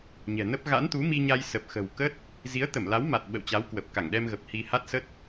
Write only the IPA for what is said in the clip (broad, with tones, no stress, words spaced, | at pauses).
ɲɛ̤˨˩nə˦˥p̚ ɣa̰˧˥nt̪u˨˦mi˧ɲa˧j sə˨˩p̚xə̤˨˩wkə˦˥t̚ | zi˨˦ə̯t̪ə˧˩mla˨˦wma˨˩t̚ ɓə̰˧˨wt͡ɕa˨˦w kwə˨˩p̚ka˧˩ŋɗɛ˧mɣə˨˩p̚ hi˧ ha˦˥t̚sə˦˥t̚